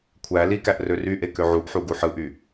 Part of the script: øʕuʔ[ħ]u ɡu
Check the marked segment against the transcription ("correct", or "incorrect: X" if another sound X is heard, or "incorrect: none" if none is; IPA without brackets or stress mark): correct